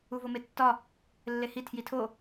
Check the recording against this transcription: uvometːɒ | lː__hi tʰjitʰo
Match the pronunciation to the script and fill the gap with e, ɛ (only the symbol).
e